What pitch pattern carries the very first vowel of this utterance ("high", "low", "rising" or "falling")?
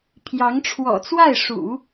rising